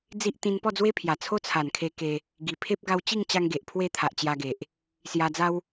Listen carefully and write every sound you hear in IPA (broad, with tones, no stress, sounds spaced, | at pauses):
d͡z i˦ ʔ t̪ ĩ˧ n p ɔ˥˧ d͡z w e˦ pʰ j a˨˩ t͡sʰ o˦ t͡sʰ a˨˩ n kʰ e˧ k e˧ | ɡ i˨˩ pʰ e˦ p̚ ɡ a˧ w t͡ɕ i˥˧ ŋ t͡ɕ a˧ ŋ ɡ e˨ ʔ pʰ w e˥˧ t̪ʰ a˨ ʔ t͡ɕ j a˧ ɡ e˨ ʔ | s j a˧ d͡z a˦ w